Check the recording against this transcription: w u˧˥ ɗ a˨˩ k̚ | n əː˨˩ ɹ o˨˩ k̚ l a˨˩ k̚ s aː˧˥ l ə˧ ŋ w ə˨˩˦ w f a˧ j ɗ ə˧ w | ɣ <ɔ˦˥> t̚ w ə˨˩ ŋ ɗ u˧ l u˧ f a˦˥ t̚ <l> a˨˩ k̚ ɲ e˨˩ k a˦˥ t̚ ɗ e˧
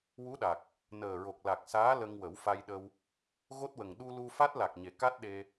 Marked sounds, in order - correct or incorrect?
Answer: incorrect: o˦˥, correct

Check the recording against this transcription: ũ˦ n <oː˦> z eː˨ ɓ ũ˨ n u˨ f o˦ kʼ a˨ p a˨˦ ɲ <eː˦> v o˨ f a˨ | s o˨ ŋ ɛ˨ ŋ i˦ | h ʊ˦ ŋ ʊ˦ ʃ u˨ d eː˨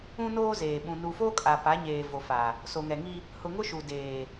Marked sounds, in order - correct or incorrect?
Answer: correct, incorrect: eː˨

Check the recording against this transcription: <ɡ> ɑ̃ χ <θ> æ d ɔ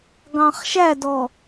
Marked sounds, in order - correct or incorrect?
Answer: correct, incorrect: ʃ

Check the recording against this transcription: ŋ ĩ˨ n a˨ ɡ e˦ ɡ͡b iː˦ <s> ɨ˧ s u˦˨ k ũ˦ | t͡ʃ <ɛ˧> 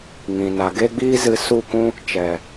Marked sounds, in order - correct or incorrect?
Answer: incorrect: z, incorrect: ɛ˨

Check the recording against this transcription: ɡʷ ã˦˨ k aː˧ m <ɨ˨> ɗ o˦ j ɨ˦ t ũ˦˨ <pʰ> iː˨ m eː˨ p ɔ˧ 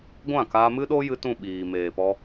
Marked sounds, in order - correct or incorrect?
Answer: incorrect: ɨ˦, incorrect: ɓ

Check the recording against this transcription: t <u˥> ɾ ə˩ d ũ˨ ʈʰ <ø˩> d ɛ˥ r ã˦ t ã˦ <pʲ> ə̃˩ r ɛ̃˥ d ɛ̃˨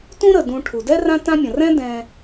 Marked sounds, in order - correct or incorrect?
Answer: incorrect: ũ˥, incorrect: u˩, incorrect: mʲ

